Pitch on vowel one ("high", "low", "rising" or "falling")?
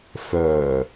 low